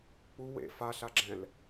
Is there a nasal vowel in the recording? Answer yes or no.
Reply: yes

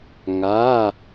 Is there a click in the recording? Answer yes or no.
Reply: no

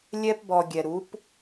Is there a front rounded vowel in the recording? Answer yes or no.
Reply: no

